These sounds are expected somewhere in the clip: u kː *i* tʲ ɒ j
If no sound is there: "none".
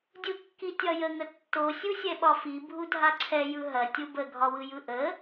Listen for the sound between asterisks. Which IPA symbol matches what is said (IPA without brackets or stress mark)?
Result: i